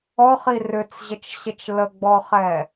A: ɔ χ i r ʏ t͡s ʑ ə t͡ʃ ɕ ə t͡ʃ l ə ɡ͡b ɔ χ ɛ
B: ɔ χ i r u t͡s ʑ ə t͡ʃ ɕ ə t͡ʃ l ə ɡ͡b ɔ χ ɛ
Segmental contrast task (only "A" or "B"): A